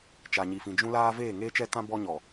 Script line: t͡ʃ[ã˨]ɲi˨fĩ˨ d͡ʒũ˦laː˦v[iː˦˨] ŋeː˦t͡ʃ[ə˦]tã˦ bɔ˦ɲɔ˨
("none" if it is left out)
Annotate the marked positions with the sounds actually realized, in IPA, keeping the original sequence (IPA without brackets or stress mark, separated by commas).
a˨, eː˦˨, ɛ˦